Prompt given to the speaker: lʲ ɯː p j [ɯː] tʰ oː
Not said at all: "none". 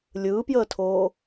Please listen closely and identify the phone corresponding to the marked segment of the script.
əː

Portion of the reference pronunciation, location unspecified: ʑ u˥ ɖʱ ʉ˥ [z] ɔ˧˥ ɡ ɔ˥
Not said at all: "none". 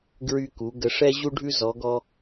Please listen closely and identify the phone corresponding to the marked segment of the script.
z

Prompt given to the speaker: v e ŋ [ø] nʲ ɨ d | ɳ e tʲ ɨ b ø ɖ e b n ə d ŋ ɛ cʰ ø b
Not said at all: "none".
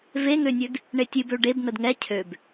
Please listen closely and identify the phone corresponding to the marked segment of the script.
ø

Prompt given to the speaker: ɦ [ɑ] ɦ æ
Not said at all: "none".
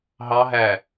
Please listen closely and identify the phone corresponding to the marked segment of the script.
ɑ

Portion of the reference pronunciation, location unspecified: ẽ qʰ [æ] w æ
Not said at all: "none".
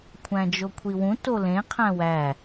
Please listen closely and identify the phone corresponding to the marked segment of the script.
æ̃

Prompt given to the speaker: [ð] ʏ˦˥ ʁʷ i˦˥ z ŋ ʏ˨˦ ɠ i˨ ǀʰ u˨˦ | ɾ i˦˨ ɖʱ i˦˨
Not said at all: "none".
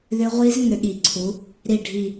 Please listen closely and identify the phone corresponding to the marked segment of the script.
ð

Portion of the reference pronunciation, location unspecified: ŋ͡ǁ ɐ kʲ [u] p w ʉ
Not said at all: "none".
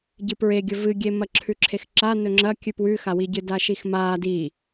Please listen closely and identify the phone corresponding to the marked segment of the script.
ʉ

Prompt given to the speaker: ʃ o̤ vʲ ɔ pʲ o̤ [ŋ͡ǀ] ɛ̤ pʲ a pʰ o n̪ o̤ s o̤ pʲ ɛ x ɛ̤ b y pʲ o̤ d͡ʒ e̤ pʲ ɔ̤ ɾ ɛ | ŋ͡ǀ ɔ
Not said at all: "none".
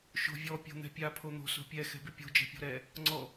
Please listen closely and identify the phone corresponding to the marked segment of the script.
n̪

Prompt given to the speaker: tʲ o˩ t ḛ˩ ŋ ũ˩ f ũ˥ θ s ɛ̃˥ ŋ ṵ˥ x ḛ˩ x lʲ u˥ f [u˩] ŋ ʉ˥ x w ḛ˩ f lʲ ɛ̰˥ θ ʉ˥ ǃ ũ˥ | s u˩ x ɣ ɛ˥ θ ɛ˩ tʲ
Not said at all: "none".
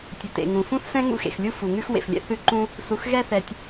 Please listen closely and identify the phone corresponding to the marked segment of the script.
u˩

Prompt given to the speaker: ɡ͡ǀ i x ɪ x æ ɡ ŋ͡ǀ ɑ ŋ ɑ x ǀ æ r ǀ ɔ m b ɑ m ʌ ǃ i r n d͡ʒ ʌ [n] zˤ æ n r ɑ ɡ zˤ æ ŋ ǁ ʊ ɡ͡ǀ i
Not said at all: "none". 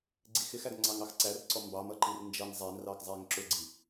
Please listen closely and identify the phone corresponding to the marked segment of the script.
n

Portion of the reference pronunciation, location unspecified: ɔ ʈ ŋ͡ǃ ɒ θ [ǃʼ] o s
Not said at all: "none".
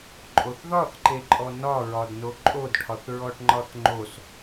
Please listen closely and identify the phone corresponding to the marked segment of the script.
ŋ͡ǃ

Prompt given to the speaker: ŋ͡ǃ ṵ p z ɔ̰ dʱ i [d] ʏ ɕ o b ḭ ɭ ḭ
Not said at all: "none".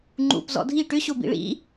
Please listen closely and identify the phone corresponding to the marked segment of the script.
ʈ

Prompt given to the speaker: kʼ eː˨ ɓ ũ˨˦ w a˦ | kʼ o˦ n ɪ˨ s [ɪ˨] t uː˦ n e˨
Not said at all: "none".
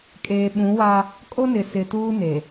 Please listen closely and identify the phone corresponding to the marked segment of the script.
ɪ˨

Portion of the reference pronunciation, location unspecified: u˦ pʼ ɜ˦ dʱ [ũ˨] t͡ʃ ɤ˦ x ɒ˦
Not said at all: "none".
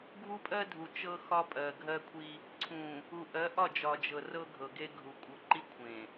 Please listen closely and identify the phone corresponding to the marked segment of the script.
u˨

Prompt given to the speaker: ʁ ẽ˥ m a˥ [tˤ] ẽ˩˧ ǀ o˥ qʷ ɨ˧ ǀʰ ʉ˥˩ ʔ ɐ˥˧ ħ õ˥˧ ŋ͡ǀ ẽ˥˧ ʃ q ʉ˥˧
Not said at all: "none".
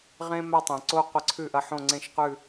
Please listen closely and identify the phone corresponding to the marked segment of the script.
tˤ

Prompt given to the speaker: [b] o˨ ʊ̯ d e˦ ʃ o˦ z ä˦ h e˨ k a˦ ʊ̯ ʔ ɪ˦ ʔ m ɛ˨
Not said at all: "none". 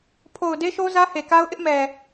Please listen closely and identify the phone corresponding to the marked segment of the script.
pʰ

